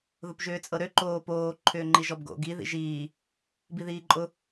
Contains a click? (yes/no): yes